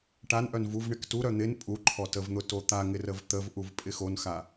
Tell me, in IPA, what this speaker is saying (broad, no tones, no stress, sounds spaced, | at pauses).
ʈ a n ʔ œ n v u v ɳ ɪ k t u ɾ œ n̪ ɪ n pʼ u ǃʰ ɔ t ə v n̪ ʊ t o t̪ a ŋ ɪ r ə v t̪ ə v ʔ u v pʼ ɪ x o n x a